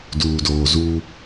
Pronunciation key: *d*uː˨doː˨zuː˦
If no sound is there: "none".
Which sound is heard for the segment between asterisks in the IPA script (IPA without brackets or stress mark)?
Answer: d